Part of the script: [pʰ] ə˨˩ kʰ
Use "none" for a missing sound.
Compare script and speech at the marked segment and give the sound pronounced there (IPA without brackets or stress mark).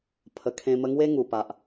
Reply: pʰ